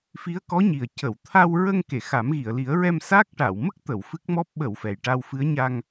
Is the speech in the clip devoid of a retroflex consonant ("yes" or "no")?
no